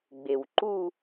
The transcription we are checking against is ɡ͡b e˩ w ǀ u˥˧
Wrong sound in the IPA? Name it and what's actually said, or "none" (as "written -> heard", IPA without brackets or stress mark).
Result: ǀ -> ǃ